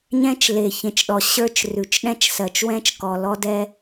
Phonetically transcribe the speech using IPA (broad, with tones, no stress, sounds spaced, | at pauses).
ɲ ɛ̃˦ t͡ʃ l e˨ ç ẽ˨ t͡ʃ ɗ ɔ˨ ɕ ə˞˦ t͡ʃ r ʉ˨ t͡ʃ ɗ ɛ̃˦ t͡ʃ s ɜ˨ t͡ʃ w ɛ̃˦ t͡ʃ k ɔ˨ l ɔ˦ d ɛ˦